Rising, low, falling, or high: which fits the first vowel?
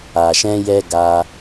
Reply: low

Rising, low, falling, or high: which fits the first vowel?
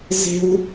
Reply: high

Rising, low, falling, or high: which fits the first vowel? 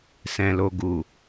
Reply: low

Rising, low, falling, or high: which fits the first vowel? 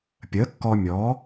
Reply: rising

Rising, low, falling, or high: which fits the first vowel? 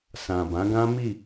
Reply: low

